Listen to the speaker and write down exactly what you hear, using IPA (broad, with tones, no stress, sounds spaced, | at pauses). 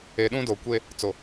e˨ ɗ ũ˦ d o˨ kʷ e˦ | t͡s o˨